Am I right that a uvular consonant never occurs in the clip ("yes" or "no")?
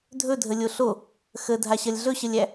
yes